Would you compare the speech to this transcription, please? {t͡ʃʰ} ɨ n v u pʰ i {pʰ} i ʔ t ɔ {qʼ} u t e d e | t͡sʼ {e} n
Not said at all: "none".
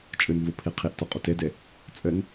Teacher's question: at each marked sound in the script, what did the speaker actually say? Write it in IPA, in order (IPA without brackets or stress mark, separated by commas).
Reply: t͡ʃʼ, qʰ, qʼ, ɘ